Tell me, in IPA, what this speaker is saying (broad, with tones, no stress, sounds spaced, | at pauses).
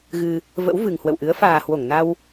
ɣ ɨ˧ | v ə̰˧˥ w v ɨ˨˩ ŋ h w ə̰˧˨ w ʔ ɨ˨˦ ə̯ f aː˨˩ h w o˧˩ ŋ n a˧ w